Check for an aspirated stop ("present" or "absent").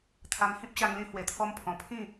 present